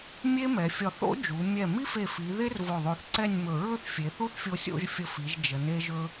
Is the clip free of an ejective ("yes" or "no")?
yes